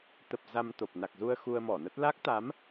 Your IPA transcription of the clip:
t̪ ə˨˩ p̚ z a˧ m t̪ o˨˩ p̚ n a˨˩ k̚ z u˧ ə̯ x u˧ ə̯ m ɔ˧˩ n ə˦˥ t̚ l a˦˥ k̚ t̪ a˨˦ m

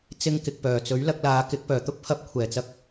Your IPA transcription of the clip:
t͡s ɪ˥ ŋ k ɪ˧ k̚ p œː˨ t͡s ɵ˨˥ ɥ l ɐ˧ k̚ l aː˨˧ k ɪ˨˥ k̚ p œː˨˩ t̪ ʊ˥ k̚ pʰ ɐ˧ p̚ kʷʰ ɛː˨˩ t͡s ɐ˧ k̚

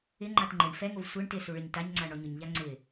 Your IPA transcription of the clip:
ɪ ŋ͡ǃ a t ŋ͡ǃ e ɳ f ɛ ŋ o v sʷ ɛ ɳ t ɪ s u ɭ e ɲ t a ɲ ŋ͡ǀ a ɳ ɔ ɲ ʊ ɲ ʎ a ŋ͡ǀ ɪ

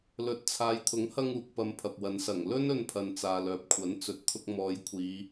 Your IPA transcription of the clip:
l ɵ˨˥ t̚ t͡sʰ aː˨ j t̪ʰ ʊ˨˥ ŋ h ɐ˧ ŋ uː˨ k̚ p ɐ˧ m pʰ ɐ˨ p̚ w ɐ˨˧ n s ɐ˨˩ ŋ l ɵ˥ n ɵ˧ n pʰ ɐ˨ n t͡s aː˨ l œː˨ p̚ kʷʰ ɐ˨˥ n t͡s ɵ˨ t̚ t̪ʰ ʊ˧ k̚ m ɔː˨˧ j kʷʰ iː˨˧

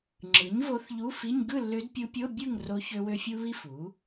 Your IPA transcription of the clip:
ŋ͡ǁ ɯ˩˥ ɲ v o˧˥ θ ʎ u˧˥˧ f i˧˥˧ ɲ ɡ ɯ˥˨ lː ø˧˥ d pʲ u˧˥ pʲ o˧˥˧ bʲ ɯ˥˨ ŋ r o˧˥ ç ø˥ w ø˥ fʲ u˥ β i˥ f u˩˥

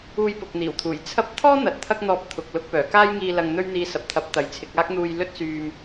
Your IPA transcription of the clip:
uː˧ j p ʊ˨ k̚ n̪ iː˨˩ w t̪ʰ uː˨˩ j t͡sʰ ɐ˥ p̚ t̪ʰ ɔː˥ n̪ ɐ˨ t̚ t̪ʰ ɐ˥ k̚ n̪ ɔː˧ p̚ t̪ʰ ʊ˨ k̚ l ʊ˧ k̚ p œː˨˩ k aː˥ j ŋ iː˧ l ɐ˧ ŋ n̪ ɵ˥ ɥ n̪ iː˧ s ɐ˨ p̚ t̪ʰ ɐ˨˥ p̚ t̪ ɐ˨˧ j t͡sʰ ɪ˨˥ k̚ aː˥ k̚ n̪ uː˧ j l ɵ˥ t̚ s yː˧ m

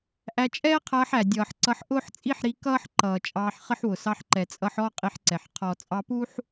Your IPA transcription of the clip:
ʔ æ˧ t͡ʃʼ ɛː˦ qʰ ʌː˧ ħ æ˨ dʲ ʌː˨ ħ ǀ ʌ˧ ħ ʔ ʊː˦ ħ t͡sʼ i˦ ħ ɾ i˧ k ʌː˦ ħ ǃ ʌː˨ t͡ʃʼ ɑː˧ ħ χ ə˦ ħ w ʊ˨ s ɑ˧ ħ ǃ ɛ˨ t͡sʼ ʌ˧ ħ ɔ˦ qʼ i˧ ħ ǀ ɛ˨ ħ qʰ ɔ˨ t͡sʼ ɑ˧ p u˦ ħ

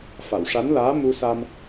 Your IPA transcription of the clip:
f a˨˩˨ w ʂ a˧˥ n l aː˧˥ m u˧ s a˧ m

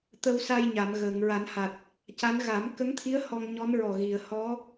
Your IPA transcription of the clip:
t̪ ə˧ w s a˧ j ɲ a˨˩˨ m ɣ əː˨˩˨ ŋ ɹ a˨˩˦ n h a˨˩ t̚ | c a˧˥ n ɣ a˨˩˦ m k ə˧˥ ŋ t̪ʰ i˧˥ ə̯ h ɔ˧ ŋ ɲ ɔ˧˥ n ɹ ɔ˨˩ ɣ i˨˩˨ ə̯ h ɔ˧˥

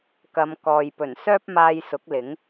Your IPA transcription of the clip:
k ɐ˨˧ m k ɔː˨ j p ɵ˨˩ n s œː˥ p̚ m aː˧ j s ʊ˨˥ k̚ l ɪ˨˥ ŋ

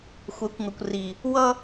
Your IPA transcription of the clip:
xʷ ɛ˨˦ kʷ ŋ ʌ˨ kʷ r i˨ | w ʌ˦

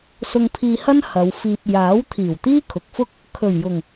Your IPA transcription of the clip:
s ʊ˧ ŋ pʰ iː˧ h ɐ˥ n h ɐ˨˧ w f iː˧ p̚ j aː˨˥ w t̪ʰ iː˨˩ w t̪ iː˥ kʰ ʊ˨ k̚ f ʊ˥ k̚ | kʰ ɵ˨˩ ɥ j ʊ˨˩ ŋ

